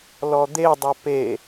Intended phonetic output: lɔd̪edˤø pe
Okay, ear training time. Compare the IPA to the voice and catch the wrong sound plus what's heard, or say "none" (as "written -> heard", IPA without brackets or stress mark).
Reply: none